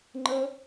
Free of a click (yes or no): no